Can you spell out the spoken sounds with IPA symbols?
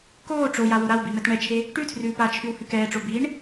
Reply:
koː ʈ͡ʂoja woɾawbi mɛtɳɛt͡ʃʰe | ʈʉtʰrʉː pat͡ʃʰʉw hʉkɛːʈ͡ʂo biɳ

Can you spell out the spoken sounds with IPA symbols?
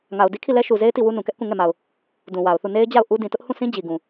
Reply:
ŋa˨ʊ̯di˦kʰi˦˨ lɛ˦ʃu˨ze˦ɪ̯ ti˦˨wu˦ nũ˨kɛ˦ʔkũ˦˨ ŋɛ˦˨ma˨ʊ̯ | dũ˨wa˨ʊ̯θu˦˨ ne˦ɪ̯ d͡ʑa˦˨ʊ̯ ʔu˦ dĩ˨tʊ˦ʔhũ˦˨sĩ˦ d͡ʑi˨ɡũ˨

